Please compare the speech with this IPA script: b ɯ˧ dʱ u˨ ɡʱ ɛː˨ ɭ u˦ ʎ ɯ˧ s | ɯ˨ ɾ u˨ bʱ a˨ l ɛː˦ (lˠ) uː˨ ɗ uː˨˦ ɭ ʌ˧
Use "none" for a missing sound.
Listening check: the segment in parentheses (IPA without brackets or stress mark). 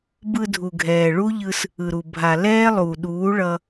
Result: lˠ